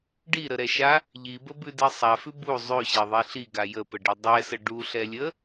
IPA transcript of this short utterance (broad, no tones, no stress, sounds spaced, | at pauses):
ɖ i ɾ ə ɾ ɛ ʃ a | ʎ i b ə b ʉ d e sˤ a f ʉ b u zˤ ʉ ɕ e ðˤ i ɬ i ɡ a j ə p ə ɖ e dˤ ɛ s ə ɖ u ɬ ɛ lʲ ə